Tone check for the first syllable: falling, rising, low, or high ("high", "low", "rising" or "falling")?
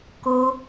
high